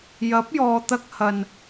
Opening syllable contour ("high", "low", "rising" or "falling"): rising